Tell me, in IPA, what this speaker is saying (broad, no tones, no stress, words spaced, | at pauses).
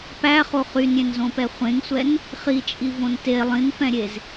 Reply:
pæχo χynɾʲẽnzõpɛ χʷẽŋsʷɛn | χit͡ʃʼivõn te lˠĩnfɛ̃ɾʲez